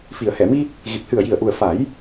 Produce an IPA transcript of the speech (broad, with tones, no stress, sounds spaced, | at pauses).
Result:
f i˨˩˨ ə̯ h ɛ˨˩˨ m i˧ | ɣ i˨˩ p̚ h ɨ˨˩ ə̯ j i˨˩ ə̯ ʔ u˨˩ ə̯ f a˨˩˦ j